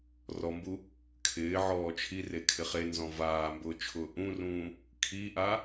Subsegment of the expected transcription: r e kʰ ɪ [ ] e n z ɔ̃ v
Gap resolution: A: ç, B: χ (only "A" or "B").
B